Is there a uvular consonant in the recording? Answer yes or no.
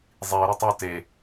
no